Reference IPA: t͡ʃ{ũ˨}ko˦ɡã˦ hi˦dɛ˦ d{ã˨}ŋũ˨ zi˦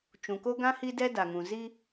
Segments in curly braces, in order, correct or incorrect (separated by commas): correct, incorrect